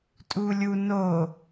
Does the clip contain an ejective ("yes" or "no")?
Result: yes